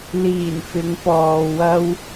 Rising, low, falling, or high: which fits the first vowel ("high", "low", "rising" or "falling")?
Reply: low